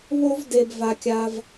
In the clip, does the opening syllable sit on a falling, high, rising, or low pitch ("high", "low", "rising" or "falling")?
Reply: high